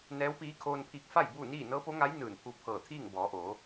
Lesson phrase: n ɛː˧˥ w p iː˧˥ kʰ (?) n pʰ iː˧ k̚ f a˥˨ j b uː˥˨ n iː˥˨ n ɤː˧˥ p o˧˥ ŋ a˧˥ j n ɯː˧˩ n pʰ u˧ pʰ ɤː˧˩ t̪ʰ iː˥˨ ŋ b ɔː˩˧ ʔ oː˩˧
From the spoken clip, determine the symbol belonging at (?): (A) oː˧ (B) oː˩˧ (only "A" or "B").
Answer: A